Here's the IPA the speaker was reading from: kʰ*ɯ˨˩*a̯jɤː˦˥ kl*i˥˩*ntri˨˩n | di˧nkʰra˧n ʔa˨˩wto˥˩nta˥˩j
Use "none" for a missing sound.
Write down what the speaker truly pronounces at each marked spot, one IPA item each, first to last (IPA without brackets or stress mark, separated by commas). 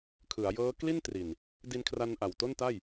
ɯ˩˦, i˥˩